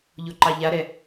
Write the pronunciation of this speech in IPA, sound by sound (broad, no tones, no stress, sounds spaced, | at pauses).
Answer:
ʎ o ǃ ɑ ʎ a ɾ ɛ